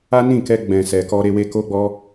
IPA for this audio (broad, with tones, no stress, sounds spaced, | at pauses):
a˦ n ĩ˦˨ k ɛ˧ ɡ͡b ɛ̃˨ s ɛ˨ k ɔ˧ ɾ e˧ w e˦ k o˦ ɡ͡b ɔ˦